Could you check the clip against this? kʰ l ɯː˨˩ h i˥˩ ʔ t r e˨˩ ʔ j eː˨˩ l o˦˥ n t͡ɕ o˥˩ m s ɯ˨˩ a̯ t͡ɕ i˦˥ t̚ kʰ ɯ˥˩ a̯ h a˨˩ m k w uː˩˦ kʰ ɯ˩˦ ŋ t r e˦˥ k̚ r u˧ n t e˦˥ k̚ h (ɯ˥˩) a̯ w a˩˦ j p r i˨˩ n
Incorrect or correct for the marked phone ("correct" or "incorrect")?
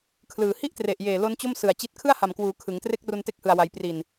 incorrect